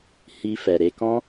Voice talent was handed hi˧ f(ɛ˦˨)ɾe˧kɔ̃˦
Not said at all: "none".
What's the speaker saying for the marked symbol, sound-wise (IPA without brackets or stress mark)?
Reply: ɛ˨